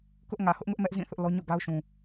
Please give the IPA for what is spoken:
kʊ˦ʔŋä˨ hʊ˦ʔŋʊ˦ʔ mɛ˦ʔzĩ˦˨ θʊ˦ʔlɔ˦ ɲo̰˦˨ɡa˦ʊ̯ʃũ˨

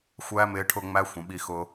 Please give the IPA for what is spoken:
xʷæ˦ mɪː˧ʈʰʊ˦˨ ŋ͡mæ˦xʷə̃˨ɓi˧xʊ˧

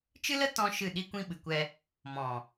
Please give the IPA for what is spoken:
t͡ʃɨ˦lə˦ tɔ̃˦ ʃɨ˦˨ ɗi˦kʷĩ˦ɓɨ˨kʷɛ˧ | mɔ̃˨

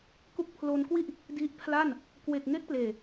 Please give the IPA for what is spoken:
ku˦˥k̚pʰlo˧nkwi˥˩ʔ | di˦˥ʔpʰla˥˩n | kwe˨˩k̚ ŋe˦˥k̚pleː˨˩

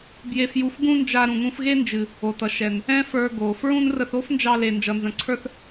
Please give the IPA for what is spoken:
bje˧fju˧f ɡũ˦nd͡ʒa˧ ɾũ˨ŋũ˧fɣe˦nd͡ʒɨ˨ | o˨tʌ˨ ʃɛ˨n | ɛ̃˦fə˞˧ ɡo˨ fɹũ˦n rə˧θo˦fnd͡ʒɑ˧le˨ nd͡ʒʌ˨nzə̃˨ǀʰə˞˧θ

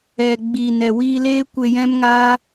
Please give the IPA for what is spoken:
ɛ˨ɡ͡biː˨nɛ˨ wiː˧leː˦ kʷe˧jɛ̃˦mŋaː˦

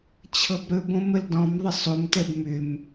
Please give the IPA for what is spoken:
t͡ɕʰɤbɾɵbõ məldɔ̃m ðˤəsˤomtɛb mʏm

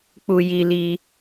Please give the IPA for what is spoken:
k͡pu˧ ji˧li˧

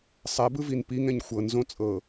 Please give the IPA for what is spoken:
sˤɛbɯvin piŋɛ̃ɲ xʷɤnzõ t͡sʼɤ

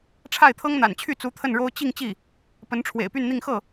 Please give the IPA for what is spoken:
ʈ͡ʂʰa˥˩ɪ̯t̪ʰɤ˥ŋn̪a̰˨˩nt͡ɕʰy˥˩ t͡su˧˥t̪ʰə˥˩nɻo˥ʊ̯ t͡ɕi˥˧ŋ t͡ɕi˥˩ | pə˧˥nʈ͡ʂʰwḛ˨˩ɪ̯py˥˧nn̪i˥˧ŋ xɤ˥˩

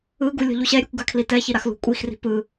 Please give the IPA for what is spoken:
ɯɡu lʲɔ̤ʎuɕɛɾʲekʷ ɡakʰlitɛçi ɾaxlṳkʷʼixri̤ pɯ

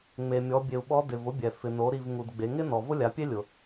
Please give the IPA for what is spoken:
ŋ͡me˩mʲɔ˩˧bʲe˩u̯ ɓɔ˧˥ dɪ˩vʊ˧˥bʲɛ˩ fɪ˩no˩˧ ɾi˩v ŋu˩dɡ͡be˩˧ŋɪ˥ nɔ˩vʊ˥lʲa˩˧pʲe˥ lʲʊ˩

